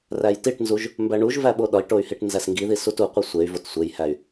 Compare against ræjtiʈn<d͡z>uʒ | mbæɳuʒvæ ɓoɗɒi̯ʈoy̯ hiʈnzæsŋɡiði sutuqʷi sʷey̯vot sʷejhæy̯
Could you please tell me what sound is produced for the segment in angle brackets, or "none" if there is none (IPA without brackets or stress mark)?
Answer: z